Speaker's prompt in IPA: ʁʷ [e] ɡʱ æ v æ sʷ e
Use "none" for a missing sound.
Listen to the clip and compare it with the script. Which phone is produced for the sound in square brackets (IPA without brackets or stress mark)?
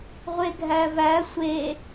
e